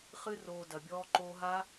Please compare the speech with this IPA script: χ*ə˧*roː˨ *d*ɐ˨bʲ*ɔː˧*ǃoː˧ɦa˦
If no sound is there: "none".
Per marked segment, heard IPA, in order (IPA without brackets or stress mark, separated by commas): ɨ˧, d, ɔː˧